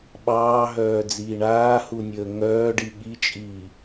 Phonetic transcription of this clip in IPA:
ɓ ɑː ɦ œː d͡z iː ɳ aː h u nʲ əː ŋ œː ɖ i ɠ i t͡ʃʼ iː

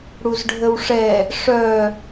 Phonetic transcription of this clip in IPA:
ɽ u z ɖʱ ə w ʂ ɛ | ʂ œ

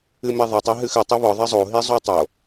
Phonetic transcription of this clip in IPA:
ɨ m ɛ ðˤ ɛ tˤ ɘ ɦ ɨ x ɘ tˤ i β ɔ ðˤ ɛ zˤ o ɦ i zˤ u tˤ o

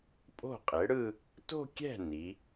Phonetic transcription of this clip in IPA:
pʼ o̤˥˩ qʼ e˩˥ ɽ ɯ˥˧ | t o̤˥˧ kʲ ɛ̤˥˩ n i˩˥

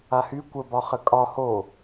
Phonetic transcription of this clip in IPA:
a h y kʷ ə b ɒ χ ə kʼ ɒ h o

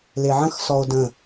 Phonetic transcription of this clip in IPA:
l e ʕ ə̃ x s ɔ o̯ d ə̃

